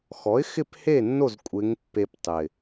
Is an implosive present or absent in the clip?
absent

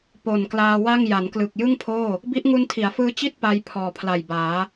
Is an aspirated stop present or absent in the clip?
present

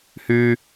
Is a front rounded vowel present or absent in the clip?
present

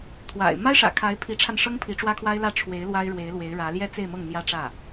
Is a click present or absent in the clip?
absent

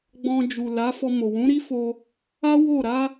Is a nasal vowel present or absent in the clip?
present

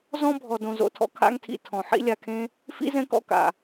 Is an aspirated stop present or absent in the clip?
present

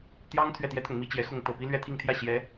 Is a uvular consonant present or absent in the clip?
absent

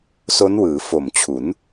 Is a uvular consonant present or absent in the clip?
absent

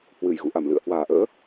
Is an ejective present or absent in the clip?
absent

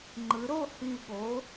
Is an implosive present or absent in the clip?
present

